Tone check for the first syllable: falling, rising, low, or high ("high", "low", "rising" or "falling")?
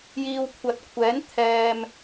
low